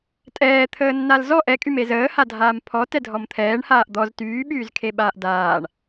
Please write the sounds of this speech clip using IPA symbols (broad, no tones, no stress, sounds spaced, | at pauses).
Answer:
tʼ ɛː t̪ʰ əː nː a l z ɔ ʔ ɛ kʼ y m e z əː h a dʱ aː m pʰ ɔ t ɛ dʱ ɔ m t̪ʰ ɛː ɳ h aː ʔ d̪ ɔ z t yː ɓ yː z kʰ e ɓ aː ʔ d aː ɳ